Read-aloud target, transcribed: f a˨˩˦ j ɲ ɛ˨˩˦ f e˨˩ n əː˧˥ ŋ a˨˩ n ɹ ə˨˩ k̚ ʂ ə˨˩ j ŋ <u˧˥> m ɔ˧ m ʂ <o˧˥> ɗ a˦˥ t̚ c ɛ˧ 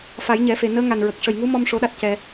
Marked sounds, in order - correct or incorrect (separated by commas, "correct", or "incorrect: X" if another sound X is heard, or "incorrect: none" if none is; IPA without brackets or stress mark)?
correct, correct